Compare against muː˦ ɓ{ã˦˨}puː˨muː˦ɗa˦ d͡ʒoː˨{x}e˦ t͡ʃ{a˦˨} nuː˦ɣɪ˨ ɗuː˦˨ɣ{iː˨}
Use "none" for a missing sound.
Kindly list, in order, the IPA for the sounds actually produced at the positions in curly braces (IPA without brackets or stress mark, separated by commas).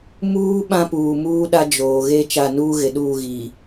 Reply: ã˦, ɣ, a˦˨, iː˨